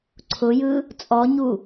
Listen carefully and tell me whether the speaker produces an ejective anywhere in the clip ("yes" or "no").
yes